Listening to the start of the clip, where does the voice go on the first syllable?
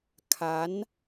rising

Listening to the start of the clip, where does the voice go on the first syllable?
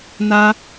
high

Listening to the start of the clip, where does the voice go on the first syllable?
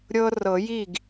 high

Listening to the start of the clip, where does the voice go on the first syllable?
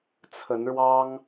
rising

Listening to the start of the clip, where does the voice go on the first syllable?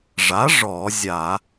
rising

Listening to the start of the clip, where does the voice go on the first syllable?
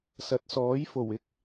rising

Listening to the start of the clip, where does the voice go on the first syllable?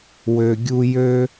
low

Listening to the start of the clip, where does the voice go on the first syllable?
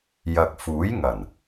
low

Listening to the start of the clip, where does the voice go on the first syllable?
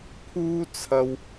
high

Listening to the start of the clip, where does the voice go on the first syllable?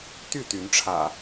falling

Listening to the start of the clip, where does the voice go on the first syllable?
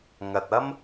low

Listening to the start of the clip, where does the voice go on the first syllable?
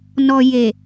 low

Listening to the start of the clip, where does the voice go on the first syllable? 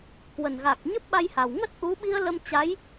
low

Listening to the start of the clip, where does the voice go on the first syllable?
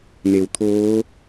low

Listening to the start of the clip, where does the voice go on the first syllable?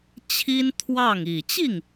high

